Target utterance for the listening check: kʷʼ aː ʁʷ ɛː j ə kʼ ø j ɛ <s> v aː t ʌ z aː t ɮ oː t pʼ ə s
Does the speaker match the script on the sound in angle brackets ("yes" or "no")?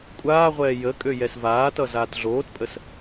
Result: yes